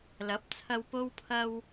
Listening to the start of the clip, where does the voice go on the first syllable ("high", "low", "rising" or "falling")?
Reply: rising